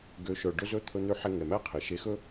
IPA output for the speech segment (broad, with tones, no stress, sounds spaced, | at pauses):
ɡ ø˩˧ ʃ œ˩ ɖ ɵ˧ z ɵ˧˥ t̪ʰ ɵ˧ n̪ ø˧˥ ħ ɛ˧ ŋ ɛ˩ m æ˥ qʰ e˩ ʃ e˧ x ɵ˥